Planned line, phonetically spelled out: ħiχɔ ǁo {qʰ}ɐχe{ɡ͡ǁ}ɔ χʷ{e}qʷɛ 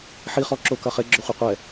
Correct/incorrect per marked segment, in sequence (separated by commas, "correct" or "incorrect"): incorrect, correct, incorrect